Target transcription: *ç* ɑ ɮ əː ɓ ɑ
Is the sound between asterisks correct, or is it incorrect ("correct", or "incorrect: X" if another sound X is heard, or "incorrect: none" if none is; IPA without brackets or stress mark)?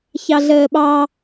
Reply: correct